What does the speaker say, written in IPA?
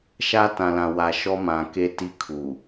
ʃ a˦ t ã˨ l ã˨ w a˨ ʃ ɔ˦ m ã˨ k e˦ t i˦ kʰ u˨

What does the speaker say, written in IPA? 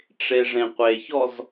ʈ͡ʂ e ʐ ẽ qʷ e ç ɔ z

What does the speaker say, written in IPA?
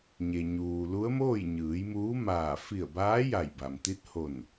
ɲ e˩ ɲ uː˩ l u˧˥ ə̯ m oː˥˨ j ɲ ɯː˩˧ j m uː˧˥ m aː˧˩ f i˧˩ ə̯ b aː˧˥ j a˧˩ j b a˩ m t̪ i˧˥ t̚ h o˧˩ n

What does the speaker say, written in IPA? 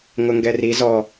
ŋ ʊ ŋ ɡ ɛ r i z ɔ

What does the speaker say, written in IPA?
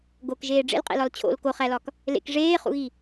ɡ o k ʒ eː ɖ͡ʐ ḛ l qʼ ḛ l ɒ l t͡ɕʰ o̰ l k o χ æ l ɒ k | l ḛ k ʐ eː χ ṵ ɣ i

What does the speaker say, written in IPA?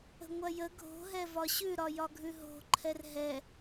ə̤ ŋʷ ɐ j ə ɡʱ o̤ ɦ ɛ v ɒ ɕ ʉ ɾ ɒ j ɒ ɡʱ ʉ ɦ o̤ ǃʰ ɛ r ɦ ɛ

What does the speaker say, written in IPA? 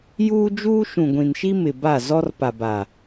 j uː˦ d͡ʒ uː˦ ʃ ũ˨ ɡʷ ĩ˨ n ʃ i˦ m ɪ˨ b a˦˨ z ɔ˦ r p a˨ b a˨

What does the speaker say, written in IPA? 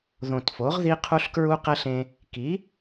ð õ˨˩ t f o˩˥ ʁ ð i˦˥ qʰ u˦˥ ɬ k ɹ u˦˥ q ɛ˦˥ ɬ ẽ˧ | k i˩˥

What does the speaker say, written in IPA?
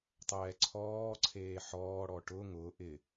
tˤ ɛː ǀʰ ɔː ǀʰ eː ħ ɔː ɽ ɔ ʈ ʊ ŋ ʊ ʔ ɪ

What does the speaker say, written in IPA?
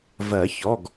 v ɜ˨˩˦ ç ɔ˩˧˩ ɡ

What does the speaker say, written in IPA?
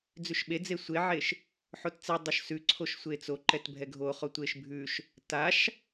d͡z ʉ ʃ ɓ e d͡z e sʷ e ʕ e ʃ | ħ o t t͡s ɛ dˤ o ʃ s ʉ ǀʰ o ʃ sʷ e t͡s o ǃ ɛ t bʱ ɛ ɡʱ o χ o tʷ e ʃ bʱ ʉ ʃ | t a ʃ

